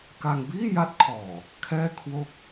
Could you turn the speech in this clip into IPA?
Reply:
ka˧ŋbiː˥˩ja˦˥t̚kʰɔː˨˩ | kʰɛː˥˩kʰwo˥˩k̚

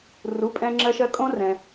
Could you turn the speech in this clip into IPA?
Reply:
ru˩˧˩pʼɛ̃˧ŋ͡ǁɜ˧ʃɜ˧ kʼõ˥rɛ̃˩

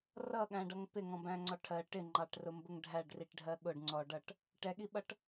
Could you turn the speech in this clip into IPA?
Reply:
rʌɠæ̃ɖʌŋ pɪŋɔ̃bæ̃ŋ͡ǀɒ ʈʰɜ ʈɪŋ͡ǃɑʈrʊmbʊŋ ɖʱæɖriʈɖʱɜ ɠʊɖŋ͡ǀɔɖʌʈ | ʈɛɠiɓʌʈ

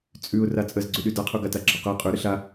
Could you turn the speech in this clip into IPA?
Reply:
t͡sʼʉʊ̯ rat͡sʼəzɡ͡ǀyɗy daqʰuɡata ɡ͡ǁɑqəɪ̯ qʼʉɾɯɬ a

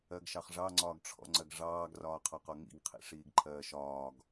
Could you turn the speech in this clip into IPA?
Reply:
ɜɡʃɑχʐɑ ŋ͡ǀɒːɡʈ͡ʂʰɔ̰ŋ͡ǀɜɡʐɑːɡ rɒːqʰɒqɔŋḭɡ qʰḭʂiːɡǃʰɜːʃɒːɡ

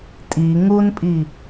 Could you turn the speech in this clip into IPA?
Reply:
tʼi ŋunpʼi

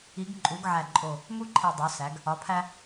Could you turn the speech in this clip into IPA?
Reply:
i˩˧ɡ ǃʼu˩˧ɡʕæ˨˩ ǃʼo˨˩ | mu˧ ǃʰe˨˩dˤo˩˧sæ˩˧ɡ | ɒ˩˧pʰæ˧

